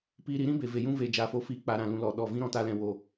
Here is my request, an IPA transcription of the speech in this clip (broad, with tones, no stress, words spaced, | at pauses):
piː˧ɾi˨˦ɾĩ˦ be˨ve˨jũ˦ ve˧ d͡ʒaː˨fo˧fiː˧ k͡pa˧ɾã˦˨ lũ˧lɔ˨ɗɔ˦˨ vĩ˦ɾɔ̃˧taː˧lɛ̃˨ wo˨